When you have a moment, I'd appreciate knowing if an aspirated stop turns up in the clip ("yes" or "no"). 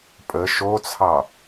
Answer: yes